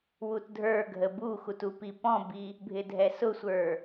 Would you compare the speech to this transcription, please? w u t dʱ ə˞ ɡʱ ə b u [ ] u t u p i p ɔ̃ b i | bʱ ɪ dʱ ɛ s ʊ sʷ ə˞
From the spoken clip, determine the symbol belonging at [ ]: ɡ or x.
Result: x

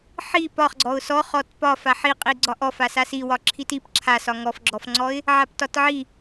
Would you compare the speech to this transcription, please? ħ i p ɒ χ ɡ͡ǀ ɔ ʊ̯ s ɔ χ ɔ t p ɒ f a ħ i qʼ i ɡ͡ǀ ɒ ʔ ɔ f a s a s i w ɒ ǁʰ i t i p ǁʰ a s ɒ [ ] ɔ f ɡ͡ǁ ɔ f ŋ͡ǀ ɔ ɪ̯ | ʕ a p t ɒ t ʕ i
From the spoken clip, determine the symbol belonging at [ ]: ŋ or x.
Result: ŋ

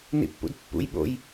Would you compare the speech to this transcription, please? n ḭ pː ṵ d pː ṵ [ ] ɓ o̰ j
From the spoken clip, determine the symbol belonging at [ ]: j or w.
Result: j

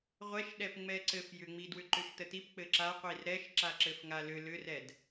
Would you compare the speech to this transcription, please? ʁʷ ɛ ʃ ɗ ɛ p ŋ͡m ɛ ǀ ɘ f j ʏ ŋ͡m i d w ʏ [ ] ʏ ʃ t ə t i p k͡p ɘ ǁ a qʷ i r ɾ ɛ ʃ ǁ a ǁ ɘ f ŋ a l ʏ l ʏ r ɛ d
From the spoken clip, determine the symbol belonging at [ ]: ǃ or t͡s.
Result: ǃ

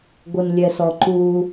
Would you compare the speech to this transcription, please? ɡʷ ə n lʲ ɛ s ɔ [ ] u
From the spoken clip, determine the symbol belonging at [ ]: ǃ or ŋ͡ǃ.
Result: ǃ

